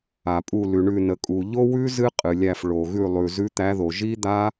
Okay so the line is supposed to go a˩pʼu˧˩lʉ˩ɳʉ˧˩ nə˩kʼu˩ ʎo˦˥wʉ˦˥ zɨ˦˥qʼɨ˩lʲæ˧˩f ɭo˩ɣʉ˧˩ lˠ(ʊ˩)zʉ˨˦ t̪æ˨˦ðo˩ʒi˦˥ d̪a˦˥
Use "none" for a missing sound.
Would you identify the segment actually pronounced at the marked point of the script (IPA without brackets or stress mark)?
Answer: ʉ˩